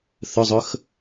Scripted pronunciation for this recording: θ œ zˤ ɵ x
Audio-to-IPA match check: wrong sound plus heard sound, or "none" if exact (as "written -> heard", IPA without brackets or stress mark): œ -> ɵ